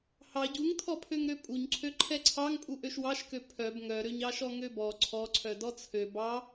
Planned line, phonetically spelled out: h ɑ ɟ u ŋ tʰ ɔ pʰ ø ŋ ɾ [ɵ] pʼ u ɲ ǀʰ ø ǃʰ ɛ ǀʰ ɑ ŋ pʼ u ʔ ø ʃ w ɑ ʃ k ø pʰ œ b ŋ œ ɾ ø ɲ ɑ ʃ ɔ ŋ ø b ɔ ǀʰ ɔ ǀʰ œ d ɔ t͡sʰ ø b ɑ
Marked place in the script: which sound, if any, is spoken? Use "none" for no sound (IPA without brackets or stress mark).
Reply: ø